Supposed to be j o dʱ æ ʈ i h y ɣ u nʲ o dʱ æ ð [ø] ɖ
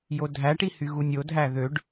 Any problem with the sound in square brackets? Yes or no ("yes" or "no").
no